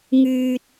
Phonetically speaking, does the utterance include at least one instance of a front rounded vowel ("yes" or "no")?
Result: yes